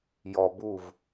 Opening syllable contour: low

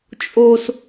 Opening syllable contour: high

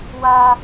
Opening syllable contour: high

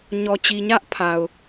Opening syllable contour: low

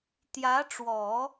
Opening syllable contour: rising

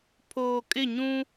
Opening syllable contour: low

